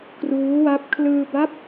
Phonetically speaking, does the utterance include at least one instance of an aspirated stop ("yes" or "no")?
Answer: yes